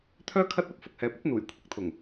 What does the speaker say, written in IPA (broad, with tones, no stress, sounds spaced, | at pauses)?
t̪ʰ œː˥ kʰ ɐ˥ t̚ ɐ˧ p̚ f ʊ˨ k̚ h ɛː˨ p̚ ɐ˨˥ t̚ n̪ uː˨˩ j kʷʰ ɪ˨˥ k̚ t̪ʰ ʊ˨˩ ŋ